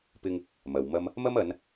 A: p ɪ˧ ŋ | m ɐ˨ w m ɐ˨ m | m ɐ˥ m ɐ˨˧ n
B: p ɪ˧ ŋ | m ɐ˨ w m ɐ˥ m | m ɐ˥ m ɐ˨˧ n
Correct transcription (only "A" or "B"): B